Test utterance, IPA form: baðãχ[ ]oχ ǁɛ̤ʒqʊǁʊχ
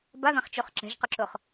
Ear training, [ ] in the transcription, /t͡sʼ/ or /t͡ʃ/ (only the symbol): t͡ʃ